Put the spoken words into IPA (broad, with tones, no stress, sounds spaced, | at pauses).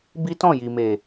b i˦ t ɔ̃˦˨ j i˨ m e˨